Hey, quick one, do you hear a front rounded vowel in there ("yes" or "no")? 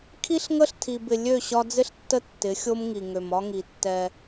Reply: yes